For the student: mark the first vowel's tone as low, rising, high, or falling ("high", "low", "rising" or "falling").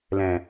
low